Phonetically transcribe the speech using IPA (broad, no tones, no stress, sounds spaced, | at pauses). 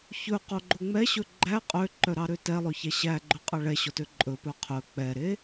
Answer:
ç ɵ q o ɡ͡ǃ o ŋ͡m ɛ ɕ ɵ ɡ͡ǃ æ qʼ ø ǃ œ ɾ ɑ ɾ ø t ɛ lˠ ɵ ç æ ɕ æ ɡ͡ǃ ɵ qʼ ɑ ɭ ɛ ɕ ɔ t ø ǃʼ ɵ p œ qʰ ɵ k͡p ɛ ɾ e